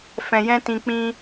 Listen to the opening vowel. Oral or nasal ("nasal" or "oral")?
nasal